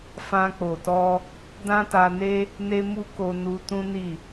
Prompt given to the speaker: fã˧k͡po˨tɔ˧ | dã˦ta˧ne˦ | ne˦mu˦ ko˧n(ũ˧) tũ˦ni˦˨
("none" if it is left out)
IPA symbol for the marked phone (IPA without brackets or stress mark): u˧